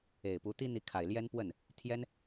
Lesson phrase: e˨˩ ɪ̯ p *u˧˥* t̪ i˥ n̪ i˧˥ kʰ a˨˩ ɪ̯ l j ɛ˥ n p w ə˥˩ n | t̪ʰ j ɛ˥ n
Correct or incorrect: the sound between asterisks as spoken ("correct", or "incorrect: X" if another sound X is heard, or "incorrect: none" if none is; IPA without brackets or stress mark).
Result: correct